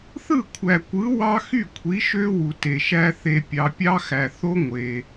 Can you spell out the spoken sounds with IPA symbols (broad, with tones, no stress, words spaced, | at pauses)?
θɯ˥˩kʷʰæ˨kʷɯ˨˥ wɑ˦xy˥˩ kʷʰi˨˥ʃø˦ wu˨te˨ʃæ˦ θe˨pʲɑ˨pʲɑ˦xæ˨ θo˦ ŋʷe˨